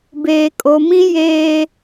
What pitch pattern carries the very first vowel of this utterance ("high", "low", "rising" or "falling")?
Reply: low